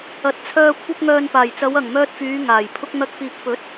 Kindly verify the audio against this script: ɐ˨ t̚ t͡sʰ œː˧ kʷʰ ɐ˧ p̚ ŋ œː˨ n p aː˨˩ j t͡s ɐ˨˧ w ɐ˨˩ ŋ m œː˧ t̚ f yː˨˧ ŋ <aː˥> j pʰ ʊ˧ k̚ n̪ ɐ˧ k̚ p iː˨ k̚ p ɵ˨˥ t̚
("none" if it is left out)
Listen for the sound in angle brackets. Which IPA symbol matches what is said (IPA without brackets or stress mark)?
aː˨˩